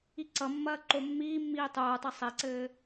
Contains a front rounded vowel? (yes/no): no